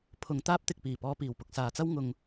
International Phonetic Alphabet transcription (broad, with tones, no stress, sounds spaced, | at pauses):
pʰ ʊ˨ ŋ t̪ aː˥ p̚ t̪ ɪ˨ k̚ p iː˨˩ p ɔː˧ p iː˨˩ w p ʊ˨ k̚ s aː˨ t͡s ɐ˥ w ŋ ʊ˧ ŋ